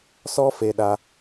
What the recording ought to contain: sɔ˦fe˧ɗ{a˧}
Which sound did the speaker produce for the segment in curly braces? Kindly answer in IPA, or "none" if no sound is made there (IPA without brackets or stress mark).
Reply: a˧